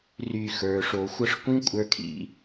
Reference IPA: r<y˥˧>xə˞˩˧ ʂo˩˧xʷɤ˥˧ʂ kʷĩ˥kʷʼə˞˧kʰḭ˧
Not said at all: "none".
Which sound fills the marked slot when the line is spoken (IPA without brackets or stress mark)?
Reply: y˧˩